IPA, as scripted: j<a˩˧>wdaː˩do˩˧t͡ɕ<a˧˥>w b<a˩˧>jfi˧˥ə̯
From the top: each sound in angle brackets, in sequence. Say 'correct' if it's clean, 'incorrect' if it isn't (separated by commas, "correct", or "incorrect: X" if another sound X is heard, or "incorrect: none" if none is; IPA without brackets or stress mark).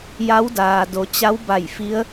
incorrect: a˧˥, correct, incorrect: a˧˩